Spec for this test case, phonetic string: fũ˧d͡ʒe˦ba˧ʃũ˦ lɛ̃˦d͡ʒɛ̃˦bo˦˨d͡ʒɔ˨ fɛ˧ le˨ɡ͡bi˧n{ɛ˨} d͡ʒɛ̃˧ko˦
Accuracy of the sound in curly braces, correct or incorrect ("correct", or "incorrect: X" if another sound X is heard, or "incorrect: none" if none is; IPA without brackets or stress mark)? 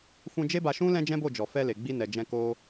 correct